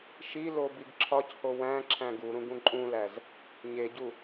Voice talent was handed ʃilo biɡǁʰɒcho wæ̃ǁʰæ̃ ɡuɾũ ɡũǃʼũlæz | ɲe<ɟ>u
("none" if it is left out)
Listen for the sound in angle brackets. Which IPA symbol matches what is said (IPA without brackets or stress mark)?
ɟ